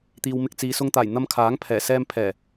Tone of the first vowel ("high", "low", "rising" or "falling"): low